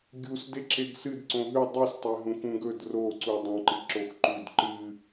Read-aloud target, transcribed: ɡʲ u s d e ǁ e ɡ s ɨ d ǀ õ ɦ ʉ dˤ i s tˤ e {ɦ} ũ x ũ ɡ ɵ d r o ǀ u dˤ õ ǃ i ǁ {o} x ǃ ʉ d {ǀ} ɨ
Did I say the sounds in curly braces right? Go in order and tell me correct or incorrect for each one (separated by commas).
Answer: correct, correct, incorrect